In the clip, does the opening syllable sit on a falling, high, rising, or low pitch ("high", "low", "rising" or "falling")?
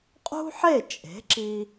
high